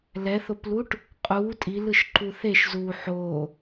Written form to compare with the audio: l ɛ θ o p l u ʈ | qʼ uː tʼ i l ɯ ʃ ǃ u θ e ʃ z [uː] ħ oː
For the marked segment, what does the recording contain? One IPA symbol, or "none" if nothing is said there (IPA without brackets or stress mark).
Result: uː